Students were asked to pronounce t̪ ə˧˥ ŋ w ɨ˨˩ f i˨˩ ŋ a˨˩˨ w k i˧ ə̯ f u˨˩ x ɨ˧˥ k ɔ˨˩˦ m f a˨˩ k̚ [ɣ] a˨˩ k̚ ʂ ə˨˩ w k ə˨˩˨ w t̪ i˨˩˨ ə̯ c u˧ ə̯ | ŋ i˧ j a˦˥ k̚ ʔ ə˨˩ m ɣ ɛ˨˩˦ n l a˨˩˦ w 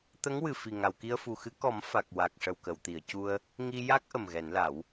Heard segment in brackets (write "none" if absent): w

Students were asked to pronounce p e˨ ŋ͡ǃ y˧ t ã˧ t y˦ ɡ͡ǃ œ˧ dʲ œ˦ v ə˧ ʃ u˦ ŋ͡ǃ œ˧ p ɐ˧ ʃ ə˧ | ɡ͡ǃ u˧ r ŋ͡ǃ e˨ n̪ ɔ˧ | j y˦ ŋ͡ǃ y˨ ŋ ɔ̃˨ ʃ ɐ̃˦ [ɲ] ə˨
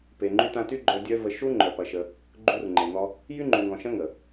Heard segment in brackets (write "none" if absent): ŋ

